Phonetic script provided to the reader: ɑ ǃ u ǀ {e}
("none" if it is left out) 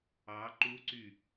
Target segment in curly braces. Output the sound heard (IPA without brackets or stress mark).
y